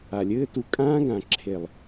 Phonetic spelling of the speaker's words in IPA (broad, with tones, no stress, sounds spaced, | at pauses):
a˨ lʲ ɘː˦ t u˧ kʼ ãː˦ ɡ ã˨ ǁʰ e˨ lˠ